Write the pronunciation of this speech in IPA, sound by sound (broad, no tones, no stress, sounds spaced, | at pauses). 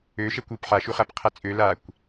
ø ʃ ɛ kʷ u p ħ a ʃ u χ a p qʰ a t͡sʼ ø l a kʷ